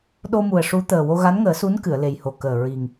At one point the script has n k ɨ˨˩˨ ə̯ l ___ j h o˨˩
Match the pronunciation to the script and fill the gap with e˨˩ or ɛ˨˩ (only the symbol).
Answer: e˨˩